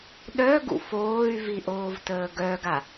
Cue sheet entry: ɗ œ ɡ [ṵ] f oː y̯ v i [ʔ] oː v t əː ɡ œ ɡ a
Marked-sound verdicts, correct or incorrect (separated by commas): correct, correct